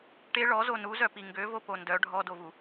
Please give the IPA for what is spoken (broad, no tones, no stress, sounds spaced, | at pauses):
ʈ e ɭ ɔ z o n u z œ p i ŋ ɡ ø v o p o n d œ ɖʱ ɔ d o v u